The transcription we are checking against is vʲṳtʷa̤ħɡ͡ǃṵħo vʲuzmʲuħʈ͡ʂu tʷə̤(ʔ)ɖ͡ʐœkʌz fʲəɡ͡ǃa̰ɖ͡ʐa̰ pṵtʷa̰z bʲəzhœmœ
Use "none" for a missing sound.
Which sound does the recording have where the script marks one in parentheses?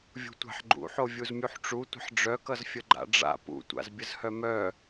ħ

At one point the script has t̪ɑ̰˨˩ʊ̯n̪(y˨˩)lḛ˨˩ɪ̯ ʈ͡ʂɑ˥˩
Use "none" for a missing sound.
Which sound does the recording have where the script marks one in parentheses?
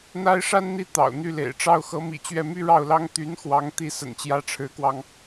y˥˩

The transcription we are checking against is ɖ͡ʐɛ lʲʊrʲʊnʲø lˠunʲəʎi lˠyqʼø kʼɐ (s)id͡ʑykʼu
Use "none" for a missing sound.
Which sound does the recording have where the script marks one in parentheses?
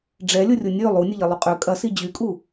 s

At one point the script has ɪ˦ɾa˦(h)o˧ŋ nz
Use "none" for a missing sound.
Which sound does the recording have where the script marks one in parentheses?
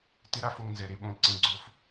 f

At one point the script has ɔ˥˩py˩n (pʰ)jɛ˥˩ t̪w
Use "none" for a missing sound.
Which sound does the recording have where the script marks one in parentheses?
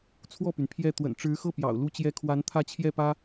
pʰ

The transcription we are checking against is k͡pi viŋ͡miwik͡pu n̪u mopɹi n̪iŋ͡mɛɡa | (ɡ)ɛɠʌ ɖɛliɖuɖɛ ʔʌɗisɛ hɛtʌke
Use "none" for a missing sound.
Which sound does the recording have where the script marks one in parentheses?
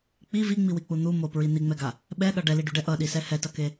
ɓ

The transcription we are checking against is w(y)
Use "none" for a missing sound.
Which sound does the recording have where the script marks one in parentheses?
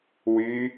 y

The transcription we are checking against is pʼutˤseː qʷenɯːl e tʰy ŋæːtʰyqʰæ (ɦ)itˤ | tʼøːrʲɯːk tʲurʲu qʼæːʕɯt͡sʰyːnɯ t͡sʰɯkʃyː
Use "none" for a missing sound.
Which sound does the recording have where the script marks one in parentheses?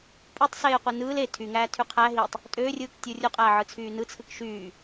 ɦ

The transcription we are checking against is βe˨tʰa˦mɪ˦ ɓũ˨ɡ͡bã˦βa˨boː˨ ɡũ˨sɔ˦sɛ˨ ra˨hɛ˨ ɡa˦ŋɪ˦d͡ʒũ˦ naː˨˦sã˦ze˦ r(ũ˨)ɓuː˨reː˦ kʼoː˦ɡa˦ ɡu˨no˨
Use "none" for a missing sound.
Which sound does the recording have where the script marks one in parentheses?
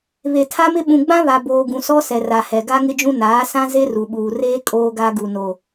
u˨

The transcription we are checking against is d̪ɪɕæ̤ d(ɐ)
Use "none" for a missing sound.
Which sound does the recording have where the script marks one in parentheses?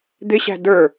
ə˞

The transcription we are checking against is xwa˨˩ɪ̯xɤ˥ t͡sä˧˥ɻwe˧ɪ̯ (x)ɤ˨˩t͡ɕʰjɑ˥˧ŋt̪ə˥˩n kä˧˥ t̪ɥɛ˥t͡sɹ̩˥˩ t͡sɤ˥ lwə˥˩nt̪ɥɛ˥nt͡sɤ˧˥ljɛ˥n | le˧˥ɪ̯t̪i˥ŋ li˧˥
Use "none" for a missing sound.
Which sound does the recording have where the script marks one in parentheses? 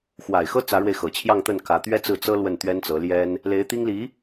x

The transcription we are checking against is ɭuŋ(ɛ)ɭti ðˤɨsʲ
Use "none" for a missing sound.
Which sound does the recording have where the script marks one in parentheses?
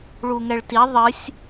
ɛ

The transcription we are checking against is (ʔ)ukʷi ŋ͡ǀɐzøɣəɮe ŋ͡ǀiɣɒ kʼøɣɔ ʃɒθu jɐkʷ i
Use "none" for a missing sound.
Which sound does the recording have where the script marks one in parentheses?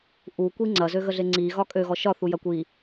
ʔ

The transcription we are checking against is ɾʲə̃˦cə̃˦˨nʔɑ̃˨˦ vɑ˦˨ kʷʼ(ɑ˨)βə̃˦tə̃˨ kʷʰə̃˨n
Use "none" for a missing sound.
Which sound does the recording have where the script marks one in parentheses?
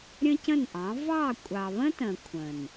ɑ˨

